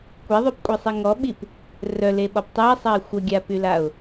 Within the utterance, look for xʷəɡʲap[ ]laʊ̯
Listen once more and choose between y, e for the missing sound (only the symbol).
y